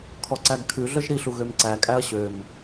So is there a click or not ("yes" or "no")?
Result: yes